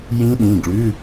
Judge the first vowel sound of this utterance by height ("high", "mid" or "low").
high